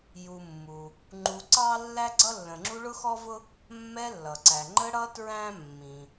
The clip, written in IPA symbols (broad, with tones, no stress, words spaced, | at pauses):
ju˨mːu˩ | ŋ͡ǃu˨ǀɑ˥ lːæ˥ɡ͡ǀʌ˥lːə̃˨ ŋ͡ǁu˦ɭʊ˥xɔ˥vʊ˥ | mːɛ˦lːʌ˩ ǀæ˩ ŋ͡ǃə˦ɽʌ˦ tɹæ̃˥ mːĩ˩